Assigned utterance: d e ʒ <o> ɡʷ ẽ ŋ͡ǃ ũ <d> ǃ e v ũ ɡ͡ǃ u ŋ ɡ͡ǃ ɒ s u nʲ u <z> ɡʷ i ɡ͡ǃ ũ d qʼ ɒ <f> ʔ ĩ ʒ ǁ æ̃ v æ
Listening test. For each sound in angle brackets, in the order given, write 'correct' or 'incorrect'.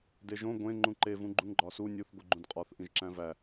incorrect: õ, incorrect: none, incorrect: θ, incorrect: θ

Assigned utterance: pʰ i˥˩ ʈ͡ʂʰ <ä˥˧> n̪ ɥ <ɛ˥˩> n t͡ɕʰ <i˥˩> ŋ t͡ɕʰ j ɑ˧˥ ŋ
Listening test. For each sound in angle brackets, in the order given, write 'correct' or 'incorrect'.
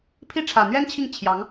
incorrect: ä˨˩, incorrect: ɛ˥, correct

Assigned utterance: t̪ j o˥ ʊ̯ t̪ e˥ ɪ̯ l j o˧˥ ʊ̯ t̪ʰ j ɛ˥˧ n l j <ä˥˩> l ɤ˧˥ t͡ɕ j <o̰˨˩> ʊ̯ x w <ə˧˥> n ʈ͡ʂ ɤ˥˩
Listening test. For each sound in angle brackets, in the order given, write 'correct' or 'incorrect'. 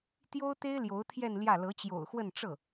correct, correct, incorrect: ə˥˧

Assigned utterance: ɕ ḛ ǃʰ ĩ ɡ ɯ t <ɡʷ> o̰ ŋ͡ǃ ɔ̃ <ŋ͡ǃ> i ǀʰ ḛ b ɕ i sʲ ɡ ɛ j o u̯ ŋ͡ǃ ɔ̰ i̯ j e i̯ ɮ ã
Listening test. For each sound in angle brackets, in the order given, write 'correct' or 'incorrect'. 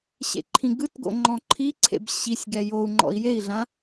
incorrect: ɡ, incorrect: ǃʰ

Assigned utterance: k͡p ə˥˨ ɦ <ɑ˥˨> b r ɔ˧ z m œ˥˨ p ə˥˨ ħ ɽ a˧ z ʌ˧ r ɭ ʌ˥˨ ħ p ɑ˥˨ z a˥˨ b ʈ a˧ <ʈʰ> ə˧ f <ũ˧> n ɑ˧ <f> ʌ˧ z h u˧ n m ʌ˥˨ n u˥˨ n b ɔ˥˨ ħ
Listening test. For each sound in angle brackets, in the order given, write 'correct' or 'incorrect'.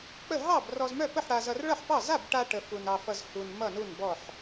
correct, incorrect: ʈ, incorrect: u˧, correct

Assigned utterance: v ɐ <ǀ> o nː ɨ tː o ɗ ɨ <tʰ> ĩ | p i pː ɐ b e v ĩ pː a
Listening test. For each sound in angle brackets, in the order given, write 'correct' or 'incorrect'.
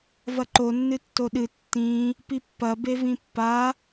incorrect: ǃ, incorrect: tː

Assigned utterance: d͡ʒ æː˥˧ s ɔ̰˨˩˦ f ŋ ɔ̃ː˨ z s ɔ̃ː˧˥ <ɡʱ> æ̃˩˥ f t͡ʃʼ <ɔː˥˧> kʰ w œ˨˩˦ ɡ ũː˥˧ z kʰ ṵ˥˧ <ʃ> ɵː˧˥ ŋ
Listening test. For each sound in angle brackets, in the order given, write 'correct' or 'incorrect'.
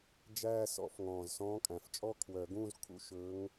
incorrect: kʼ, incorrect: ɔ˥˧, correct

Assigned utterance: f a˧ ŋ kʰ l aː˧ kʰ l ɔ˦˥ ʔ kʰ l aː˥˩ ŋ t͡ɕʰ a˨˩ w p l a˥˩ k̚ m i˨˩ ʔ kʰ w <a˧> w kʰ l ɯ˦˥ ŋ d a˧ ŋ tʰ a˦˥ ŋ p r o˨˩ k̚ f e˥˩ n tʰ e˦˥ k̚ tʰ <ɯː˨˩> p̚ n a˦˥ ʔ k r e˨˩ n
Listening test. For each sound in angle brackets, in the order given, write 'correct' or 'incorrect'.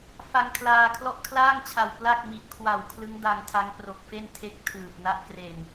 incorrect: a˨˩, correct

